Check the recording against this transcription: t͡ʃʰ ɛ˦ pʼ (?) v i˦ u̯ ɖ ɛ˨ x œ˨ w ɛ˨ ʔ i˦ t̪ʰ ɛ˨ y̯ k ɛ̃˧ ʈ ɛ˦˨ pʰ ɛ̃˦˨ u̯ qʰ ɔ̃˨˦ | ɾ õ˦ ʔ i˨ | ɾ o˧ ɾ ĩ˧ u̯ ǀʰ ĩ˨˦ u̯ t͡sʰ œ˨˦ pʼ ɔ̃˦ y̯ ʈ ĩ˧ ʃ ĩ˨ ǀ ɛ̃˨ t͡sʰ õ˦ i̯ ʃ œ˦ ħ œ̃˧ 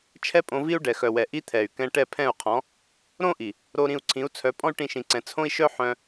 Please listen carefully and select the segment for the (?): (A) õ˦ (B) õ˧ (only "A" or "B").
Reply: B